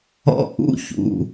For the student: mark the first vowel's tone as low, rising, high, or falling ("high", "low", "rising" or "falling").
high